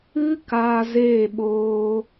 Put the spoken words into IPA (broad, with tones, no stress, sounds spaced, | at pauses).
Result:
ɨ˦ k aː˧ z eː˦˨ ɓ oː˧